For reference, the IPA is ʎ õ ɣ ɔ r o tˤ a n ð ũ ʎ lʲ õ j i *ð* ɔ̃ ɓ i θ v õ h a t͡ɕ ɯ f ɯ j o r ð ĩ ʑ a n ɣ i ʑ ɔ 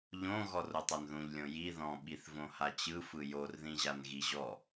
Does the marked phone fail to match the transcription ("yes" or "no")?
no